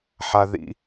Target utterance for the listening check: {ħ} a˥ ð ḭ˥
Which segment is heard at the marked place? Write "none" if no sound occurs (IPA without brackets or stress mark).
ħ